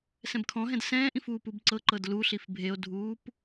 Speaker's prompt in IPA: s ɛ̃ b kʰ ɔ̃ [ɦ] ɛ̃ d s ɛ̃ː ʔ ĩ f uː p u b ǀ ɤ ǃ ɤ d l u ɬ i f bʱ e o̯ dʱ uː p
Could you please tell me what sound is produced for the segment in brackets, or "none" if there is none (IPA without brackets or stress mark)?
ɦ